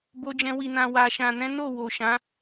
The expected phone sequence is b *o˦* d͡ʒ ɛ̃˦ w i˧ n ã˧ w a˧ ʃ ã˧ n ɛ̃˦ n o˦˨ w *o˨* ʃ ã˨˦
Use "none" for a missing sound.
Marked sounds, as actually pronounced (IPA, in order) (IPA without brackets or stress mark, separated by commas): o˦, o˨